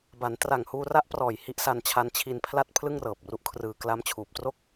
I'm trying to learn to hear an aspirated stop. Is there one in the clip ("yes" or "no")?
yes